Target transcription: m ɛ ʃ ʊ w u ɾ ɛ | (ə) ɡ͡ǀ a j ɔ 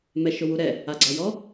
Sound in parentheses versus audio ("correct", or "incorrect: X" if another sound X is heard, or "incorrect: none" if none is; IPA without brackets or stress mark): incorrect: a